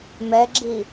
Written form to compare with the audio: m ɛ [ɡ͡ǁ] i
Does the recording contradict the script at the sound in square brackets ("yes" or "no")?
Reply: no